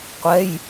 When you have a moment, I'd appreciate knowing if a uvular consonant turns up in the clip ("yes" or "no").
yes